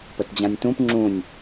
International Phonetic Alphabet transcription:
p ə t d͡ʑ ã nʲ t ũ p ŋ͡ǁ ũ nʲ

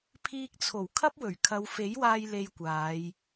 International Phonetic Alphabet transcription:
pʰ iː˧ k̚ t͡sʰ o˨˩ w kʰ ɐ˥ p̚ w ɵ˨˩ ɥ kʰ ɐ˨˧ w f e˨˥ j w aː˧ j l e˧ j kʷ aː˨˧ j

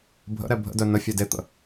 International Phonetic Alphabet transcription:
bʱ ə̰ ɾ ɛ bʱ ə̰ d œ n ə fʲ a d e t̪ ə̰

